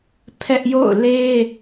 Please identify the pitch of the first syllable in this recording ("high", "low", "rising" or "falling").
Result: high